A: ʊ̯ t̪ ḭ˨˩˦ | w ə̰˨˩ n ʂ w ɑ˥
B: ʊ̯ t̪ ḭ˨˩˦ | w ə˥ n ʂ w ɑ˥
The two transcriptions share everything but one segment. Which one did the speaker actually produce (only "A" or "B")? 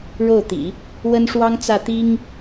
B